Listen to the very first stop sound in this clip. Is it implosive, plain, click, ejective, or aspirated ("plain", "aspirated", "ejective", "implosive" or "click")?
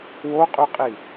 ejective